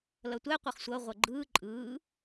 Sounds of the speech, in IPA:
l ʌ tʷ ɛ qʷ ʌ χ sʷ ʌ ʁʷ ʌ ɡ͡ǃ ɯː ǃʼ ɯː

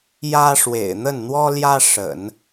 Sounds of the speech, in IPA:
j ä˥ ʂ w ḛ˨˩ ɪ̯ n̪ ə˥˩ n n̪ w ɔ˥ l j ä˥ ʂ ə̰˨˩˦ n

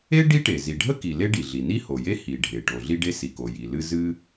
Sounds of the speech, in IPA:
e˥ ɖ i˥ ʈ e˩ z i˩ ɖʱ ə˥ k i˩ l e˥ ɖ i˩ ɮ i˩ n i˥ h o˩ j e˥ h i˩ ɖʱ e˩ ʈ o˩ ɮ i˥ ɖ e˥ s i˩ k o˩ j i˩ l ɨ˥ z ɨ˥

